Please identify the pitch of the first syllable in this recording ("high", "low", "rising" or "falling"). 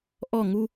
falling